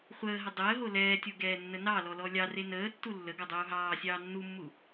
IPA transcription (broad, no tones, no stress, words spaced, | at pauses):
χʷəːɦə dˤəːɦo lɛːtʲo ɡɛːnːənɑlɔ lɔlʲɑre nəːtːu lːəɡɔ dˤuːɦɑːsʲɑː nːumːu